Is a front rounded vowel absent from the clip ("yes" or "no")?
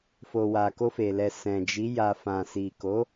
yes